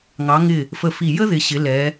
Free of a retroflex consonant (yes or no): yes